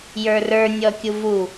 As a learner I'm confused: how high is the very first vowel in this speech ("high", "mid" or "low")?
mid